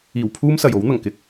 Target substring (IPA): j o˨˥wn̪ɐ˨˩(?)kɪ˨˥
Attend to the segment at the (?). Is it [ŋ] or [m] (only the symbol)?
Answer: ŋ